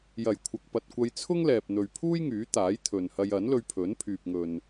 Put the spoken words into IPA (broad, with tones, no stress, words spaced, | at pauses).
jɐ˨˩jkʷʰɐ˨k̚pɐ˨t̚kʷɐ˧j t͡sʰʊ˥ŋlɛː˨p̚n̪ɵ˨ɥpʰuː˥j ŋyː˨˥t̪aː˨˥jt̪ʰɵ˨n hɐ˧jɐ˨˥nlɵ˧ɥpʰɵ˨˥n pʰyː˨p̚ŋɵ˨n